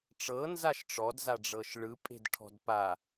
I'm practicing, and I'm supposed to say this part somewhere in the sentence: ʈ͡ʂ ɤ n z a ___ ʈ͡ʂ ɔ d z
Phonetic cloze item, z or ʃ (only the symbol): ʃ